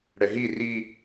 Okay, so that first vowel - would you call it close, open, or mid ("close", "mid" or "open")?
mid